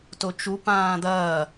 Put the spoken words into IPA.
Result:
t o t͡ʃ u p ãː d̪ ɐː

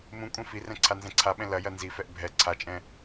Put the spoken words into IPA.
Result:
m ũ kʷʼ ɛ̃ f i r ɛ̃ ǀʰ a n z ɛ̃ ǀʰ a ɓ ɛ̃ l ɐ j ɐ n z i f ɛ ʔ bʱ ɛ ǀʰ a t͡ʃʼ ɛ̃

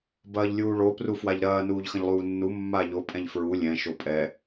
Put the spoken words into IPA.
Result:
b ɐː ʎ lʲ uː ɭ o p r u f w a ʎ ɾ ɐː n uː ʎ x ɐ̃ ʎ lˠ uː nː u mː a ʎ o pʼ ɛ̃ ʎ f ɹ u lʲ ɛ̃ ʃ o pʼ ɛ

